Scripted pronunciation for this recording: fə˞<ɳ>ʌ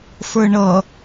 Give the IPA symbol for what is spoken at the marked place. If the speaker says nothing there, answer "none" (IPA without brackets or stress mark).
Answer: ɳ